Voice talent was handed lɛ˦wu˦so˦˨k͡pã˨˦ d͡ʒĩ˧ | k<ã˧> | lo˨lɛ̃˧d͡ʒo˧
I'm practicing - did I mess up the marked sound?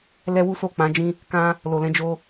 no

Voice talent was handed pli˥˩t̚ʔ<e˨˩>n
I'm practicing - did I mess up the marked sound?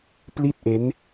yes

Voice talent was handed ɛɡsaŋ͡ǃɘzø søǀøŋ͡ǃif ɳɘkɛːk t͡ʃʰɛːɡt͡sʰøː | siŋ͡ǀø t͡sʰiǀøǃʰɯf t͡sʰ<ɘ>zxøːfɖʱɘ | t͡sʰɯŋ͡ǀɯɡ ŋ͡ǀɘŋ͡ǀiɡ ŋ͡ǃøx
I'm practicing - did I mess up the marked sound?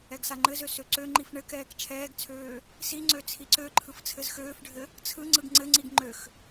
no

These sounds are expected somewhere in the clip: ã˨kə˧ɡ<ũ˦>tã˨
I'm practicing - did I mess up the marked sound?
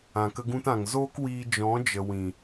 yes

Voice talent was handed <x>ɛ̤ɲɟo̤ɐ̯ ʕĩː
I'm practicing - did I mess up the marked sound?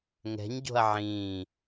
yes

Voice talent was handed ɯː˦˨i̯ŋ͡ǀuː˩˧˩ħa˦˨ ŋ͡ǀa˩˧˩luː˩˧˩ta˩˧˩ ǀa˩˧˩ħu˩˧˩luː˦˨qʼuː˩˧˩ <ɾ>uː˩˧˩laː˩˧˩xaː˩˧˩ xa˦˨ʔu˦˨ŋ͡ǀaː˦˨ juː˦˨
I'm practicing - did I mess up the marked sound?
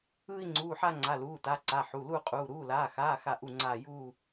no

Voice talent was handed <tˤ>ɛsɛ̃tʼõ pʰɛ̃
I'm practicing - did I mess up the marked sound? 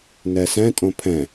yes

